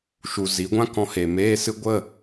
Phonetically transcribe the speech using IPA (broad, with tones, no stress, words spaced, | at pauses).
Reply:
ʃu˨ zi˨˦ɡʷã˦kɔ̃˧ he˨ meː˧sɨ˧ɡʷə˦˨